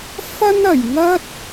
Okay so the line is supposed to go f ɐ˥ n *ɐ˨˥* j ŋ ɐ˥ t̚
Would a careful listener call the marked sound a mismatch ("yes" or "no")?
yes